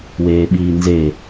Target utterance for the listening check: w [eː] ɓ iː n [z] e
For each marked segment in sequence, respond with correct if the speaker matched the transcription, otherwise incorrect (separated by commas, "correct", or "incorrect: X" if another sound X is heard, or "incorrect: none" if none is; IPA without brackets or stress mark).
correct, correct